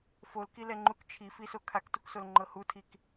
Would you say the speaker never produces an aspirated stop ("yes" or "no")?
no